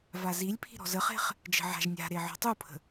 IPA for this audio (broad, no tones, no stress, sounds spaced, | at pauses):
v a z i lʲ pʰ i̤ ɾ ɔ̤ z ə χ e̤ χ | d͡ʒ ə̤ ʕ a̤ ʒ nʲ a̤ ɾ e ʕ ɔ̤ tˤ u pʰ ə̤